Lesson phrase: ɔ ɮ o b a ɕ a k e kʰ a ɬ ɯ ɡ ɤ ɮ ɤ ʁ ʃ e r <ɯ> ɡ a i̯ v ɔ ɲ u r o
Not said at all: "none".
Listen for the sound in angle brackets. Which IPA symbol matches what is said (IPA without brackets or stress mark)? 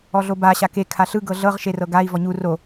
ɤ